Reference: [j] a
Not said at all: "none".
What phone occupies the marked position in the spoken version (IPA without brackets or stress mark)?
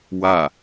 w